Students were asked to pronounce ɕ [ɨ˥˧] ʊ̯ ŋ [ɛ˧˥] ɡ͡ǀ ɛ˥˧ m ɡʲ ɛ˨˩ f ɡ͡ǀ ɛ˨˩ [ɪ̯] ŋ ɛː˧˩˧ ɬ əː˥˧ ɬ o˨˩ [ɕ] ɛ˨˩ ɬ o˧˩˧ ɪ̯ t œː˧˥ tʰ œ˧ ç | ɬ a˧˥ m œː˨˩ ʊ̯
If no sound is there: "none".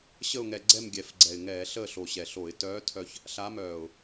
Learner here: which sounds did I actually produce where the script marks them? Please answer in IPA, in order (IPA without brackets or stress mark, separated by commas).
ə˥˧, ɛ˧, ɪ̯, ɕ